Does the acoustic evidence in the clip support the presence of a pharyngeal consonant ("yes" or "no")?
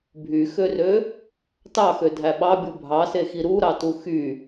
no